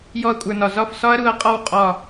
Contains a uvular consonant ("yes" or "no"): yes